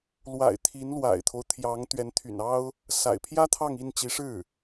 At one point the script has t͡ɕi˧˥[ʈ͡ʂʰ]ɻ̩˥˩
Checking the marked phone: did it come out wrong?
yes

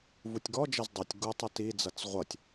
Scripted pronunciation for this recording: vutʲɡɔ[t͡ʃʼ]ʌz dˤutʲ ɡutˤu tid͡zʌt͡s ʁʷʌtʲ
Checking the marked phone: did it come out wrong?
yes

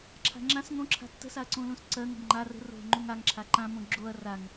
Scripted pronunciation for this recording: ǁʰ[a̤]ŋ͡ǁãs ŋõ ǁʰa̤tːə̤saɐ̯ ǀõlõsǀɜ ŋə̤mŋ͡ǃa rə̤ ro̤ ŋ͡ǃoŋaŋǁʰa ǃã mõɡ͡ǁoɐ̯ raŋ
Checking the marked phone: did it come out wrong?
no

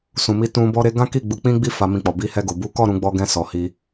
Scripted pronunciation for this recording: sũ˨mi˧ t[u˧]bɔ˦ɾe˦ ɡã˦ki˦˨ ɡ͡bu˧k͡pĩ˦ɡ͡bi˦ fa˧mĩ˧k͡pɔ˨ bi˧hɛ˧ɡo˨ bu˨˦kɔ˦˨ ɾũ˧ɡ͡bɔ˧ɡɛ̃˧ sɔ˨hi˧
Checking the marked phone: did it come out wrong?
yes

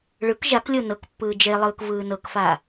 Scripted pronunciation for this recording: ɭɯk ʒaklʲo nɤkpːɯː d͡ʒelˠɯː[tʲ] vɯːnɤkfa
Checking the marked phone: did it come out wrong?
yes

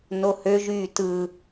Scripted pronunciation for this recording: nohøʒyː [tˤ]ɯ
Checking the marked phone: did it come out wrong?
yes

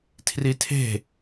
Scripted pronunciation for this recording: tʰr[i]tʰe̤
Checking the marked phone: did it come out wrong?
no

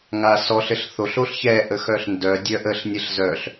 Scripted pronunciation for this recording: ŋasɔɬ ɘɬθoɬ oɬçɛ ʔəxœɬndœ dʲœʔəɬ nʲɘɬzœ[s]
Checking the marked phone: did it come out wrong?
yes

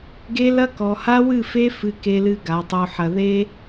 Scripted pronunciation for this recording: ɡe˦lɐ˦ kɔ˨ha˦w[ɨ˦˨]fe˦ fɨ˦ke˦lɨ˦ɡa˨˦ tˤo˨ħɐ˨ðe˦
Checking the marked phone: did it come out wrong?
no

